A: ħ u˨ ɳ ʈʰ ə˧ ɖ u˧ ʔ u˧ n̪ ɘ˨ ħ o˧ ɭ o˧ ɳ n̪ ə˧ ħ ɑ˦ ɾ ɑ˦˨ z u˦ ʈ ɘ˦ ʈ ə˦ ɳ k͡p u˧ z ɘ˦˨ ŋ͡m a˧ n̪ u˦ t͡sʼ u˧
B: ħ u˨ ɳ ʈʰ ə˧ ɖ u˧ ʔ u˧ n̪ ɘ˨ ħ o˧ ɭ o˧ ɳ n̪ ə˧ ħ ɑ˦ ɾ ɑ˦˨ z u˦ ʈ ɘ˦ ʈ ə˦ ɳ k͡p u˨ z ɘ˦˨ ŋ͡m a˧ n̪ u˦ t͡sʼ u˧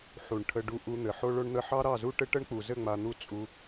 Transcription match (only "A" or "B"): B